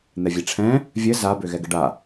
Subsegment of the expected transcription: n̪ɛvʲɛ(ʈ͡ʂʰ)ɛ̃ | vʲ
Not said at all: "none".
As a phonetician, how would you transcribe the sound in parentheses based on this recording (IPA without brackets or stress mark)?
ʈ͡ʂʰ